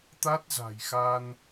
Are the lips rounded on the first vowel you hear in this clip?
no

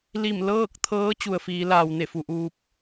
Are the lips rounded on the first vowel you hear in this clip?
no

